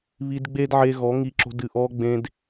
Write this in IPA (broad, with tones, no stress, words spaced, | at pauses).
βi˧d ɡ͡be˦dʕe˧ ɣɔ˨˦ŋi˧ǁo̤˧d ɨ˨ʔɔː˧ɡ͡bẽ˧d